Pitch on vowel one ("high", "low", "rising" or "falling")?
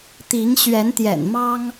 rising